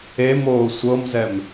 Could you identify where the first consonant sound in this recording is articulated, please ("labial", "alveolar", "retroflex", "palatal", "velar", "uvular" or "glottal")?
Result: labial